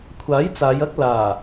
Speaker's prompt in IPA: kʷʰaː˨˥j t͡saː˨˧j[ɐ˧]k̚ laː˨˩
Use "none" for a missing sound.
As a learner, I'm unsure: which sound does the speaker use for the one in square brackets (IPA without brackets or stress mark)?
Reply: ɐ˥